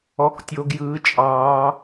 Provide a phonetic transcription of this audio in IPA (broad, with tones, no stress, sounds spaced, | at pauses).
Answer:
ɔ˦˥ k tʲ o˦˥ ɡ j ɯː˦˥ t͡ʃʼ ɑː˦˥